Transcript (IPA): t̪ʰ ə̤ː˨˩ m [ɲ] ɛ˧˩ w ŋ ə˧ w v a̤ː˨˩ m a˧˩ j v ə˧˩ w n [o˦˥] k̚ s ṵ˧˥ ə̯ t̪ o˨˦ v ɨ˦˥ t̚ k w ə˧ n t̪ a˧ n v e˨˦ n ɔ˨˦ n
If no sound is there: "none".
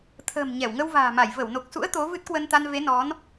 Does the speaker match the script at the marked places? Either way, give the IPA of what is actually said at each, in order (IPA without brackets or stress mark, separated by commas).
ɲ, o˨˩